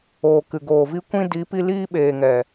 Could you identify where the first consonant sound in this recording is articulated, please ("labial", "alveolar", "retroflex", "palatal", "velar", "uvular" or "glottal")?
velar